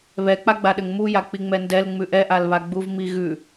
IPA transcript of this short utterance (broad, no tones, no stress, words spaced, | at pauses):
βɛk͡paɡ͡baɗɘŋ muja k͡piŋ͡mɛndɛl ŋ͡mʉʔɛʔalβa ɡ͡buvmiɣʉ